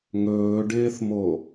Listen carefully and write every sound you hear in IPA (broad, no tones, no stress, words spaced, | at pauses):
ŋɵːɖɪːθmo